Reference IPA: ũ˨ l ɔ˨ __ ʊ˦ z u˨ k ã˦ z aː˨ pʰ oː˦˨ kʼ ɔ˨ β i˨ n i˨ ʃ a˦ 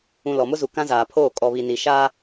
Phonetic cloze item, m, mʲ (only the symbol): m